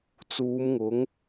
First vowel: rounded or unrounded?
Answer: rounded